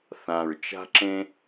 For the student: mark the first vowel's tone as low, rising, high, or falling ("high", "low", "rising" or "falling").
low